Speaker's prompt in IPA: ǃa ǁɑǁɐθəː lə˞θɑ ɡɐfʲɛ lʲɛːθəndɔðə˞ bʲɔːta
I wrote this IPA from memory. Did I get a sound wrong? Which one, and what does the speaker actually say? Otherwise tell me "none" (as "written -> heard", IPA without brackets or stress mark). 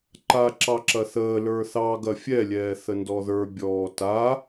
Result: none